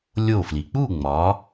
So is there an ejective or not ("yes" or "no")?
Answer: no